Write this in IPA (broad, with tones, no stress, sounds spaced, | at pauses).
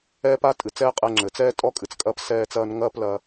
ɛː˥ p a˥ tʼ ɨ˩ t͡s ɛː˥ qʼ ɛ˧ ŋ͡ǁ ɘ˩ t͡s ɛː˥ tʼ ɔ˥ kʼ ɨ˩ t͡s kʼ ɐː˥ p s ɛː˥ t͡s ɐː˥ n ŋ ɐː˥ p l ɐ˧